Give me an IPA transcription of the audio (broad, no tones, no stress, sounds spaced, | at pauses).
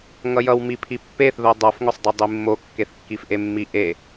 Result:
ŋ ʌ j ʌ w m i pʰ i pː e θ ð o dˤ ʌ f ŋ o sˤ dˤ e dˤ i mː o kː e θ kː i f ʔ e mː i ʔ e